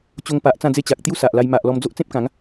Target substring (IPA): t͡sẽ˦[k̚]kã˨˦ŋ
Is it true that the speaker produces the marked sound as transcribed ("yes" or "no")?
no